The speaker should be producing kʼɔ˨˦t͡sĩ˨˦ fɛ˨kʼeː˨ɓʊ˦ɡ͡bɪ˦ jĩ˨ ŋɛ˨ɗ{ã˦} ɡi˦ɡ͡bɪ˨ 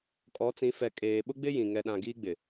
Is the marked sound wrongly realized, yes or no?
yes